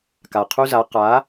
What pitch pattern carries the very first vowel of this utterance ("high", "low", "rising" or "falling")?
low